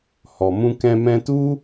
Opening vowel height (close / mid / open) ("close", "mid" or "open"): mid